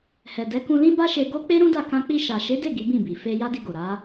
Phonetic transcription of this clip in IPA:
hɛ˨dɛ˨˦ kũ˧lĩ˦ba˦ʃe˧ ɡo˦ k͡pe˦ɾũ˦da˦˨ kã˧k͡pi˧ ʃa˨ʃe˨˦de˦˨ ɡi˨˦bĩ˦˨bi˨ fe˧ ja˦di˧ɡo˨ ɾa˨˦

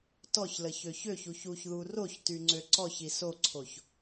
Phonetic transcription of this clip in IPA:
tɔçləçø çøçuç uçðu roçtyŋ͡ǀø ǀɔçi soǀʰoç

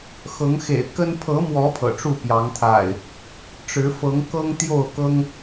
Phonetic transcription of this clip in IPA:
xɤ˨˦ŋxḛ˨˩ɪ̯kə˦n pʰɤ˨˦mwɔ˨˦ pʰɤ̰˨˩ʈ͡ʂu˥˨pjɑ˨˦ŋt̪ʰa̰˨˩ɪ̯ | ʈ͡ʂɻ̩˨˦fɤ˨˦ŋ kɤ˦ŋ t̪jo˥˨ʊ̯kɤ˦ŋ

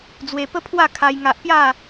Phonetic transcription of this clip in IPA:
d͡zwe˧pə˦pʰwa˥˧ kʰa˦jŋa˦ʔ pja˥˧

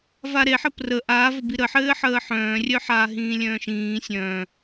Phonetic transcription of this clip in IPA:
vaɾe ħəprə ʔaːvɘbi ɾəħɘː ħəːħœ̃ːrʲœħaː ɦĩːlʲœ̃ːʃĩː sʲœ̃ː

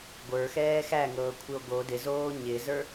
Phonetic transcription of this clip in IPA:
ɡʷə˞xɛː xæŋɤːkʷʰɪo̯ ɡo dɪzoː ɲɪzə˞

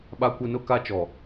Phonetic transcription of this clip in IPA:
ɓa˦kʷɪ˦ nʊ˦ka˦t͡ʃɔ˨

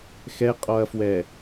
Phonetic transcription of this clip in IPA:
xɛqʼɔɐ̯fwɛ

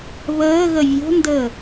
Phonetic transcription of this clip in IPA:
βəːɣə vʲo̤ndəː

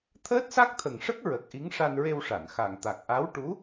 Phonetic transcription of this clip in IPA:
t̪ʰəː˦˥t̚sa˦˥k̚t̪ʰə˨˩ŋʂə˦˥k̚ ɹə˨˩k̚ ʔi˧˥ŋʂa˧nɹe˧wʂa˨˩˨n xa˨˩ŋ t̪a˨˩k̚ʔa˧˥w ʈu˧˥

